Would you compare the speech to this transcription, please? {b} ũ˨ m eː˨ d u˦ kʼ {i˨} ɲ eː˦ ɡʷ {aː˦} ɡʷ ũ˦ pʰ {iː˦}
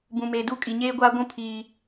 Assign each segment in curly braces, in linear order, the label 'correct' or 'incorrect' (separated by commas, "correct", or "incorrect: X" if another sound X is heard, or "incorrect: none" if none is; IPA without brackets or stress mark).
correct, correct, correct, correct